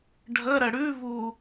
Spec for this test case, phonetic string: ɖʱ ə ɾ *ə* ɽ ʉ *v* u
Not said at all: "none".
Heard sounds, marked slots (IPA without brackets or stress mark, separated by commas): ə, v